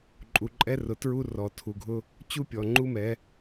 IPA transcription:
ǃʼ u˨ ǃʼ ɛ˦ r ʊ˨ t ɹ u˦ r ɔ˨ tʰ u˨ ɡʱ ʊ˦ | t͡ɕ u˦ pʲ ɔ˨ ŋ͡ǃ u˦ m ɛ˨˦

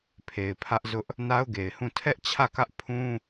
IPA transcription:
pʰ e˨ ɪ̯ pʰ ä˦ ʔ z ʊ˦ ʔ | n a˦ ʊ̯ ɡ e˨ ɪ̯ h ũ˦˨ tʰ ɛ˦ ʔ t͡ɕʰ ä˦˨ k ä˦ ʔ pʰ ũ˦

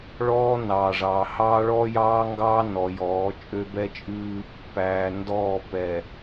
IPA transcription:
ɭ ɔː˦ n ɑː˨ ʐ ɑː˨ h ɑː˦ ɭ ɔː˦ j ɑː˦ ŋ ɡ ɑː˦ n ɔ˨ j ɔː˨˦ t͡ʃʼ ø˦ b ɛ˦ t͡ʃʼ ʉː˦ | p æː˨ n d ɔː˦˨ p ɛ˨

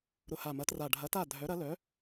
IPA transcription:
ɾ ʊ˨˩ h a˨˩ m ɐ˩˥ t r a˨˩ ɖʱ ɐ˩˥ t a˥˩ dʱ œ˩˥ ɾ ɐ˩˥ l œ˩˥

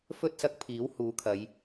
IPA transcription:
f ɵ˧ t̚ s ɐ˨˥ k̚ pʰ iː˨˥ w h uː˨˥ kʰ ɐ˨˧ j

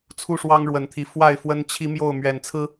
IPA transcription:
t͡sʰ u˥˨ ʂ w ɑ˦ ŋ ɻ w ə˨˩ n t̪ʰ i˨˦ f w a˥˨ ɪ̯ f w ə˦ n t͡ɕʰ i˦ m j o˥˨ ʊ̯ m ɥ ɛ˨˩ n t͡sʰ ɹ̩˦

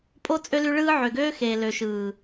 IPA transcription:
pʼ o˦ t͡sʼ ø˦ l y˦ ɭ ɯː˦ ʕ ø˨ ɡ øː˦ x eː˨ l ø˨ ʃ ɯː˨

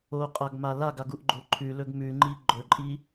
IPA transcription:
o qʼ a ɡ m a l a ɡ a ɡ u ʔ ɡ͡ǃ o ǃʰ ʉ l ɵ ɡ m ʉ ŋ͡ǃ i ɡ͡ǃ ɵ ǃʼ i

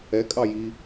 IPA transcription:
ɛ kʼ ɑ j i

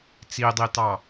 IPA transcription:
t͡s i dˤ iː t ɑ

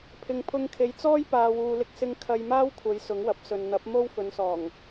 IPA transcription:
pʰ ɪ˨ ŋ pʰ ʊ˧ ŋ kʰ e˨˧ j t͡s ɔː˥ j p aː˨ w uː˨ l ɪ˧ k̚ s ɪ˧ ŋ kʰ ɐ˧ j m aː˥ w kʷʰ ɐ˨˧ j s ʊ˨˥ ŋ w ɐ˨˥ p̚ s ɵ˨ n n̪ ɐ˨˥ p̚ m o˥ w f ɵ˨˧ n s ɔː˨˩ ŋ

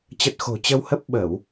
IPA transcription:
t͡ɕ ə˨˩ t̚ x o̤˨˩ t͡ɕ ə˧ w h ə˦˥ p̚ ɓ ə˧˩˨ w

